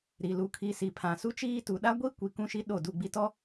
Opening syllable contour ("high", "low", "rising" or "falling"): low